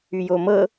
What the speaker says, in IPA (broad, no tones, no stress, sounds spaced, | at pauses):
y j o m ɤ